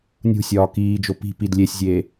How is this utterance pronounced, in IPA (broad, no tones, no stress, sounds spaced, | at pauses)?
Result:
nʲ ṳ sʲ ɒː k iː d͡ʒ o p i̤ p i d lʲ e sʲ zʲ eː